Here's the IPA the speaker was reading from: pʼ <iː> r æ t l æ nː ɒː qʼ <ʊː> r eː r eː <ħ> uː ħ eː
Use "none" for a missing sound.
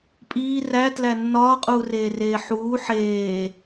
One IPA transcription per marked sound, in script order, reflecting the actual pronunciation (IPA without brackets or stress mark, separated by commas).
iː, uː, ħ